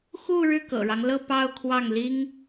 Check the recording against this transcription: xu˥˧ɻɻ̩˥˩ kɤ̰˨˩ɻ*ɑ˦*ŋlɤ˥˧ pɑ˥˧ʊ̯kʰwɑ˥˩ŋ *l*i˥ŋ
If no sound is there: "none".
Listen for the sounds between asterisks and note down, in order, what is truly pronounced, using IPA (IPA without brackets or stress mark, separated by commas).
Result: ɑ˦, l